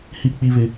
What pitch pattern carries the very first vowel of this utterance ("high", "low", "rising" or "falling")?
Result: high